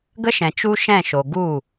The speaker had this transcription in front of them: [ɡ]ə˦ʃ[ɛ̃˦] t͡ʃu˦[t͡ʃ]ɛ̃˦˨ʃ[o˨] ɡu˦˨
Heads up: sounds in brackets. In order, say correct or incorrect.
correct, incorrect: ɛ̃˨, incorrect: ʃ, correct

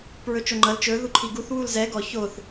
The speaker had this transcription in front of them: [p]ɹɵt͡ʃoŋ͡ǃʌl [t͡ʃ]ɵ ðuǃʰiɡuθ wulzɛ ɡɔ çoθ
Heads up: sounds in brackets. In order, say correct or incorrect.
correct, correct

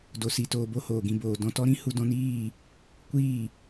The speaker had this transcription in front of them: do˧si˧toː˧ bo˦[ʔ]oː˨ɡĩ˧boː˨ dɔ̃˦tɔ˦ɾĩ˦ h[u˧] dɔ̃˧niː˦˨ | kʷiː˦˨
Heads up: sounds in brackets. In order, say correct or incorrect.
incorrect: h, correct

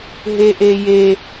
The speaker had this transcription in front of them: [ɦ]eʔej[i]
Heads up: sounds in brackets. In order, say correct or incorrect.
correct, incorrect: e

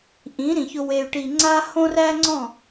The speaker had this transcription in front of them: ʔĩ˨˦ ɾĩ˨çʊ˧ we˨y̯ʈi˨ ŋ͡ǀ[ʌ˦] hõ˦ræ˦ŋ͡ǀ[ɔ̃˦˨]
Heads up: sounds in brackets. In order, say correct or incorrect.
incorrect: a˦, correct

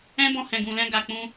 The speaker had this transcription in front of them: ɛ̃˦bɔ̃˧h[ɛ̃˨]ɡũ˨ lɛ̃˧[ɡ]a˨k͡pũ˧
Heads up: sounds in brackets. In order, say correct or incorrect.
correct, correct

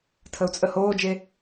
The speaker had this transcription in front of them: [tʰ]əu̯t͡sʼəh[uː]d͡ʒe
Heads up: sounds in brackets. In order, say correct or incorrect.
correct, incorrect: oː

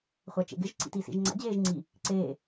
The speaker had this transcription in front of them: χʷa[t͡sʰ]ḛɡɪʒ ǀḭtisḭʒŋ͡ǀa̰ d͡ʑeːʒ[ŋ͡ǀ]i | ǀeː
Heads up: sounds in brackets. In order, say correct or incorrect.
incorrect: t͡ʃ, correct

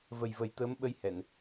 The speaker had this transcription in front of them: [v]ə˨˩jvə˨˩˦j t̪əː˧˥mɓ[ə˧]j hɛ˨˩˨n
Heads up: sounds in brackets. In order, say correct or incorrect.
correct, correct

